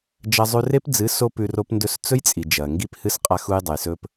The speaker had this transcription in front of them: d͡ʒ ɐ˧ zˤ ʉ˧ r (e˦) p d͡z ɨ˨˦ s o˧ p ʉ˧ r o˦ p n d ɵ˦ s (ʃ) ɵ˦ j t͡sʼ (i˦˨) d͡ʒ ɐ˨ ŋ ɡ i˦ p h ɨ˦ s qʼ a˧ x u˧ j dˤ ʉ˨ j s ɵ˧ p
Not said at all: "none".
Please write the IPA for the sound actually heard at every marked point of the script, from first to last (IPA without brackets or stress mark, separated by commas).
e˦, t͡s, i˨